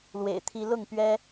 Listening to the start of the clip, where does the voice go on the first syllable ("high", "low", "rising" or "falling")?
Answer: low